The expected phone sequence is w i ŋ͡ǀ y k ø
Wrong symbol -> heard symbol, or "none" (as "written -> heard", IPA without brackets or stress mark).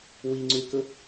ø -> ɵ